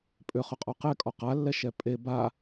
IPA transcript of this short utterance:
pʼʏ χʏqʼɔqɛ kʼɔqalːɛ ʃɛpʼe ba

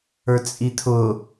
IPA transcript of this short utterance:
ə˞t͡sʼit̪ʰʊ

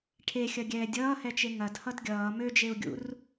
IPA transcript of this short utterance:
ʈʰexʲɐɡʲɛː dʲʌːhɛt͡ʃe ŋɐdhʌd ɡʲʌː mød͡ʒeu̯ɡʲṵr

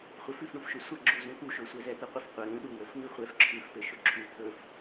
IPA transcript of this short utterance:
χʷɘfʉfɳufʃɵ sʷəɡ͡ǁu zũt̪uʃɵ sʷɛzɛt̪əqʷəf qʷə ɾũ ɗuwəf ŋʉχʷɛf ǁʰʉfpɘ ʃɵǁʰʉ t̪ʰɵf

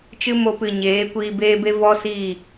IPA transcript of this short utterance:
t͡ʃɨ˦mo˧pɨ˨ ɲeː˨˦kʷiː˧ beː˦ be˦ vɔ˦ siː˦˨

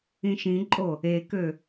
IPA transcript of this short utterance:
ĩʃĩǃʼo | ekø

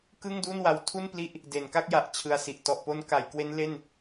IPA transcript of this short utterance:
kɯ˥˩ŋdu˥˩nwa˧w tʰu˥˩npli˦˥ʔ | de˩˦nka˥˩k̚ja˨˩ʔ t͡ɕʰɯ˧a̯si˨˩ʔ tɔ˨˩ʔpo˦˥nka˩˦j kwe˦˥nle˥˩n

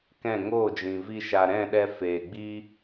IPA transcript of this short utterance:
kɛ̃˦˨ ŋoː˦˨d͡ʒĩ˨vi˧ ʃa˨ɾɛ̃˦˨ɗɛ˧ feː˨ɡ͡bi˦

